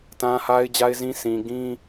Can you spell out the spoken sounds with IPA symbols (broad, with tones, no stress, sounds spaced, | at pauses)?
t ã˦ h a˦ ɪ̯ d͡ʑ a˦ ɪ̯ z ĩ˦ sʰ ĩ˨ ɡ ĩ˦